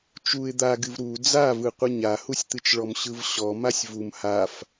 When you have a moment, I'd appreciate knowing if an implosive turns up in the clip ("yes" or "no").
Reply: no